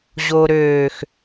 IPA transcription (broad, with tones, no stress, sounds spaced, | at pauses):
ʑ o˨ ɾ øː˨ x